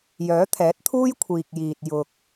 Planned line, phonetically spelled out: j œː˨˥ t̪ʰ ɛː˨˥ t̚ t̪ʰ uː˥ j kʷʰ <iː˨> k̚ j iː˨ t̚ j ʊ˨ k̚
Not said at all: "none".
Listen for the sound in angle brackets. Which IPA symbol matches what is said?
iː˨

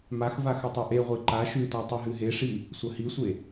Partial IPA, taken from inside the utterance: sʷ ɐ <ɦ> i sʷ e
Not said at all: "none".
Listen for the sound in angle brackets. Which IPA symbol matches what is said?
h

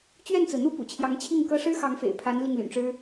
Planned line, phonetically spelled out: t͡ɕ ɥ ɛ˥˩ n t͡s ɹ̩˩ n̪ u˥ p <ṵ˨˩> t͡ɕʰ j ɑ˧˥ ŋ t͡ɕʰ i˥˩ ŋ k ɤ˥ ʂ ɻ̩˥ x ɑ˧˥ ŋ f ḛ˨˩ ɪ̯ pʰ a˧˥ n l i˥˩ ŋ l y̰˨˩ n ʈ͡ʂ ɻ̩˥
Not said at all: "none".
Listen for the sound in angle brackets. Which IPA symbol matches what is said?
ṵ˨˩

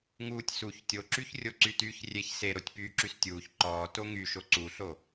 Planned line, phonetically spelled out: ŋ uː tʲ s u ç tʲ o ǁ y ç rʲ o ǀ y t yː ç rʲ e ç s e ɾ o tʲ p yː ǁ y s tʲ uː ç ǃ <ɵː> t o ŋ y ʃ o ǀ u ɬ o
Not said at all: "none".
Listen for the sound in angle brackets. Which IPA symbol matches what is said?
ɔː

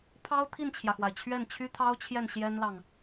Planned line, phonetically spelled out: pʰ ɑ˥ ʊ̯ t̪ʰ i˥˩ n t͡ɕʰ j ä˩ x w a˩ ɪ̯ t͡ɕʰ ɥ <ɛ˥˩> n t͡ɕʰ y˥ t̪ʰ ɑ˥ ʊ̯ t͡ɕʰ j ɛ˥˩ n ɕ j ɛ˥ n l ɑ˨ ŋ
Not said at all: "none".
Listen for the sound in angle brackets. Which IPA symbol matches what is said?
ɛ˥˩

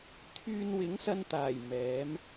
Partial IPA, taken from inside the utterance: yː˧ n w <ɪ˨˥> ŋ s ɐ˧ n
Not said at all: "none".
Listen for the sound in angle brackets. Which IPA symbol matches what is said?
ɪ˨˥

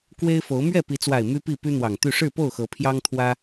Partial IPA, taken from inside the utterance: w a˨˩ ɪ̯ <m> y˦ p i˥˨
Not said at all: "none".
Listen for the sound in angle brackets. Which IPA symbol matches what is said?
m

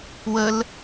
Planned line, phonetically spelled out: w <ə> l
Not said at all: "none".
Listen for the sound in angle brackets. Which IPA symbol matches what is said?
ə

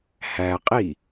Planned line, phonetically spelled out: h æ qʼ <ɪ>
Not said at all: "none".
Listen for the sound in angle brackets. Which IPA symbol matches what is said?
i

